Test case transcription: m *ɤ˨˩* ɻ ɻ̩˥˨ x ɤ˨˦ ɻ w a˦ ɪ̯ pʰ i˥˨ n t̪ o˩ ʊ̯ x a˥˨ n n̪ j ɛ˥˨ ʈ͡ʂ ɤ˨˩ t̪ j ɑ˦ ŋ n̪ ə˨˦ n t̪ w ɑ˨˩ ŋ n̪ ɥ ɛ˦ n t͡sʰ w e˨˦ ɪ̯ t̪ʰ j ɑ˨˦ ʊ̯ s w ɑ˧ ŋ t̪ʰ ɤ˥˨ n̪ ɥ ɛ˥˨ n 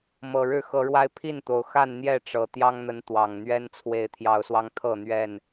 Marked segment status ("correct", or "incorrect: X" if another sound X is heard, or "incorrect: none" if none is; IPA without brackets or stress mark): correct